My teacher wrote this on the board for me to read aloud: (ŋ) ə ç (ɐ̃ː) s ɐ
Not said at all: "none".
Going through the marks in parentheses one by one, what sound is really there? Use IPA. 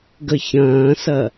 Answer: ɡ, ɐ̃ː

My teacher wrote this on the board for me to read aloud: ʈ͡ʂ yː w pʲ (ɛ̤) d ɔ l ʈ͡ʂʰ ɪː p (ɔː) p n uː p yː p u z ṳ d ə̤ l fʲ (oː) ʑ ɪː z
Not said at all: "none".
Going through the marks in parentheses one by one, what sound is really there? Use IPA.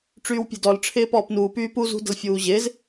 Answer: ɛ̤, ɔː, uː

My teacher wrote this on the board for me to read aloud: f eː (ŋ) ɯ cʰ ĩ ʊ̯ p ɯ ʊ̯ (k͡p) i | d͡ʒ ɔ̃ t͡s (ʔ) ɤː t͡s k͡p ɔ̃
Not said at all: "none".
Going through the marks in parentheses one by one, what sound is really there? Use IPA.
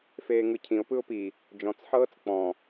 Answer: ŋ, p, ħ

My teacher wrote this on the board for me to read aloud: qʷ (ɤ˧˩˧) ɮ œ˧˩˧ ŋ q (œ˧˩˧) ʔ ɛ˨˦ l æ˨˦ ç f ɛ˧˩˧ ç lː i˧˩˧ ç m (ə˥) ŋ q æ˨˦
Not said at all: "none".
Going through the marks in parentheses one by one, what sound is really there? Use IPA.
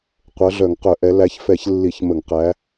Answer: ɤ˨˦, œ˧˩˧, ə˧˩˧

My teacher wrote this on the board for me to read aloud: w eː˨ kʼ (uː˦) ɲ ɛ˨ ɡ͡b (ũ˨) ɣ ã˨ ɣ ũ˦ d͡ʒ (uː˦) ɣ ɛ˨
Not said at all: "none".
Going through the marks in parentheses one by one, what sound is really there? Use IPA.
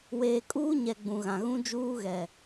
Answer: uː˦, ũ˨, uː˦

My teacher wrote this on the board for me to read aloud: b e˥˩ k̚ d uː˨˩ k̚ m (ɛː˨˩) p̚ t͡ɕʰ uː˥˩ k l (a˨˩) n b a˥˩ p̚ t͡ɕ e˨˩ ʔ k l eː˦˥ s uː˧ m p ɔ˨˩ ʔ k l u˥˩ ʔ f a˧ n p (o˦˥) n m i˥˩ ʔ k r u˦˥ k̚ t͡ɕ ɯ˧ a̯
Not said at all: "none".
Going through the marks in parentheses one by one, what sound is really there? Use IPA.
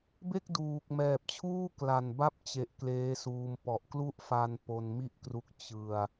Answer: ɛː˨˩, a˨˩, o˧

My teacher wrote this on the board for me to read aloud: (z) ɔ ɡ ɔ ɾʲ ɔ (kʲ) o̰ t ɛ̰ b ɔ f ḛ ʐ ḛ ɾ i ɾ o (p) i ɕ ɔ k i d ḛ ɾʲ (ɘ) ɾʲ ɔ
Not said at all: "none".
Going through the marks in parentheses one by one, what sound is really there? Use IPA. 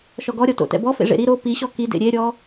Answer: ʃ, t, p, e

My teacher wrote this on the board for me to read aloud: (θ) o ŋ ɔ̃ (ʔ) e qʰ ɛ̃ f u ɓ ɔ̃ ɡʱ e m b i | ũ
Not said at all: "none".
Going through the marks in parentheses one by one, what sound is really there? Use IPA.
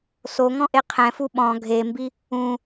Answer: s, ʔ

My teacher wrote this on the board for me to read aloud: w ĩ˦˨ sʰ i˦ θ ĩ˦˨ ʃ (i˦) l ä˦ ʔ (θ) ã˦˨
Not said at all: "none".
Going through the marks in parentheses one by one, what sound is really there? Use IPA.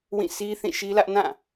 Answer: i˦, n

